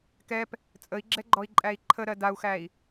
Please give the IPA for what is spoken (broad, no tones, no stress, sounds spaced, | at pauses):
k ɛ p | t͡sʼ ə i̯ ɡ͡ǁ ɛ ɡ͡ǃ ɔ i̯ ǃʼ æ i̯ ǃʰ ə ɾ ɜ d a u̯ x æ i̯